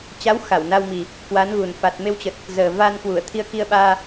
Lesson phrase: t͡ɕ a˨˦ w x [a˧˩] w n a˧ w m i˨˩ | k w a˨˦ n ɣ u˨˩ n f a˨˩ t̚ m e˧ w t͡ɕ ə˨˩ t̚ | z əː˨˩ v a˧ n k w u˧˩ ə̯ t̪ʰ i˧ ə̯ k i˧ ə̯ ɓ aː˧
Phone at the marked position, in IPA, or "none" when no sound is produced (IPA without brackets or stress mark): a˧˩